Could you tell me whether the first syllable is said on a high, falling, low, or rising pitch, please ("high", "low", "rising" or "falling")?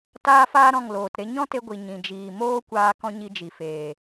high